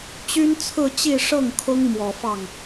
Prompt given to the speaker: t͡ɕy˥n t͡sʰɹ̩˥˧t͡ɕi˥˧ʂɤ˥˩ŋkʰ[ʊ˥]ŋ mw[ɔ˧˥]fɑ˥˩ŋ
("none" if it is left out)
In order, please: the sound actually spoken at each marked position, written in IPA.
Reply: ʊ˥, ɔ˨˩

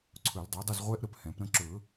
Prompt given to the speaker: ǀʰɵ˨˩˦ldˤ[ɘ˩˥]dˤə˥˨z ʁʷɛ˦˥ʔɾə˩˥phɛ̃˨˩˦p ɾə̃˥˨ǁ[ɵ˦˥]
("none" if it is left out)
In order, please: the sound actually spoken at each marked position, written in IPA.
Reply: ɛ˩˥, ɵ˨˩˦

